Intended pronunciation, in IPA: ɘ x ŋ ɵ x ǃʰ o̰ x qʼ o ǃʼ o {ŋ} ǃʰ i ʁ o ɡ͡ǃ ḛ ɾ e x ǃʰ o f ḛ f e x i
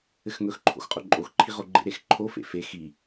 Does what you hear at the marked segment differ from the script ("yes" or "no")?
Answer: yes